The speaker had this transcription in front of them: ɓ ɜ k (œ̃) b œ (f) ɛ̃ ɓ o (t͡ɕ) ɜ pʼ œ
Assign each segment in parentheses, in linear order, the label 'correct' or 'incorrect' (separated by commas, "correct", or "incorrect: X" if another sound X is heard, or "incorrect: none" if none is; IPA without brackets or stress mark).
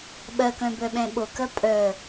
correct, incorrect: ɓ, incorrect: k